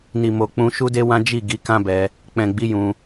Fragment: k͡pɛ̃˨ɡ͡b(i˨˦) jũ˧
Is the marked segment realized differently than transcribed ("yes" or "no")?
no